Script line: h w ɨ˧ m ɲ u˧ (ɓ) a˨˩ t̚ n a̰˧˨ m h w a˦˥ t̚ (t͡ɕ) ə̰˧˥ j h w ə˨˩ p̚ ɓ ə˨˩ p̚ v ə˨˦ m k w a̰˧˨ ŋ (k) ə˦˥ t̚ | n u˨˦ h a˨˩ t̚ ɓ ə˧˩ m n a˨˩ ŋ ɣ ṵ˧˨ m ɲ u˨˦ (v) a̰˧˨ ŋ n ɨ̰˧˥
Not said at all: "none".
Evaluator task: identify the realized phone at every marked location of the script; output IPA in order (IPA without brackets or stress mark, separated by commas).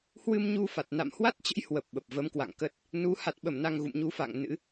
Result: f, t͡ɕ, k, f